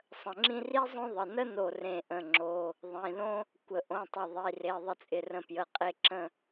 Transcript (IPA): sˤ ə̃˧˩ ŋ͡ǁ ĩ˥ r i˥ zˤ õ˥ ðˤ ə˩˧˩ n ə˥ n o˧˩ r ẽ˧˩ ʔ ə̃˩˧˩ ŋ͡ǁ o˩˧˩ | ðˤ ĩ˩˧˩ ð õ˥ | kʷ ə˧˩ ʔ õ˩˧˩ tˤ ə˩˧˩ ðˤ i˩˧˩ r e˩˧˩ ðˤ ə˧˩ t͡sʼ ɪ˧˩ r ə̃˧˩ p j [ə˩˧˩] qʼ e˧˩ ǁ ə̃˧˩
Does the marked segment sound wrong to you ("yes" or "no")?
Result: no